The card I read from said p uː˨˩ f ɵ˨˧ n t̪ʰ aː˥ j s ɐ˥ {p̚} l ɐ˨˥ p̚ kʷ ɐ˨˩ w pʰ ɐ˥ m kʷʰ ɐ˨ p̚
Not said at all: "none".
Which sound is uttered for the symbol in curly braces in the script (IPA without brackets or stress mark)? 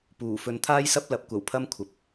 p̚